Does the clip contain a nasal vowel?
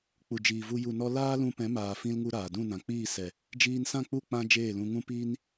yes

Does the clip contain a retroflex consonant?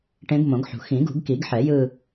yes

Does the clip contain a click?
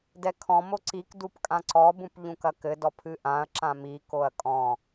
yes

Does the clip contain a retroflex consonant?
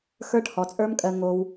yes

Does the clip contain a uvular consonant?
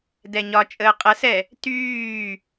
yes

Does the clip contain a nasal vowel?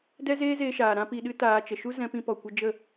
yes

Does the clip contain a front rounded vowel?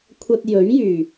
yes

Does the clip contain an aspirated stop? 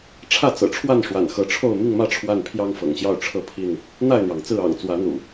yes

